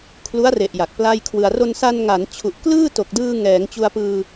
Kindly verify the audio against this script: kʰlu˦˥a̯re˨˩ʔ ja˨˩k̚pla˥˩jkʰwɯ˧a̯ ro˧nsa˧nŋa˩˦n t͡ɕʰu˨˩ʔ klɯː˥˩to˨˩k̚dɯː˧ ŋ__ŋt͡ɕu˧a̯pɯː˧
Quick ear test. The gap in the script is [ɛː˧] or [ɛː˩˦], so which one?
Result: ɛː˩˦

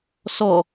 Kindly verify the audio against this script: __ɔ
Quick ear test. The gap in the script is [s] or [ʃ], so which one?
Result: s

